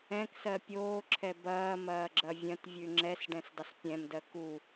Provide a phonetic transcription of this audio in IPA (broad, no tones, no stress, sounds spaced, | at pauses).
ɛ̃ k s ɜ pʲ oː ǁʰ ɛ b ɐː m ɐː ɡ͡ǁ ɐ vʲ ɐ̃ t vʲ ʉ ŋ͡ǁ ɛ s ɖ ɛ̃ s dˤ ə s pʲ ɛ̃ m d ɜ k u